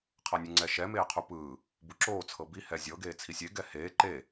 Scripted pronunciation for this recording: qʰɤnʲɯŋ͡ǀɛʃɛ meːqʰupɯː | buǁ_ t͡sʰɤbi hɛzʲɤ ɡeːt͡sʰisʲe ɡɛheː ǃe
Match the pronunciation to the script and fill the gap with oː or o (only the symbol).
oː